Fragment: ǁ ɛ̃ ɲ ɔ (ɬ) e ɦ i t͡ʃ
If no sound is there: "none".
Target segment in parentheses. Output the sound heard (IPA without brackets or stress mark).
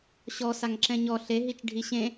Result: ɬ